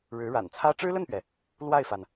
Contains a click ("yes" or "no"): no